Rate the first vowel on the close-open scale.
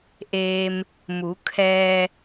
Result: mid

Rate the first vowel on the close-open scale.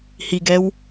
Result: close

